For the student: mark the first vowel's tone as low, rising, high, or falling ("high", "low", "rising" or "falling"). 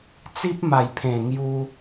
high